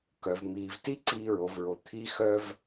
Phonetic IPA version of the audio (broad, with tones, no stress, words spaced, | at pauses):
kœ˩vmiː˩vti˧ ǀiː˧ɹo˩vɹo˩ t̪ʰi˧ xœ˧v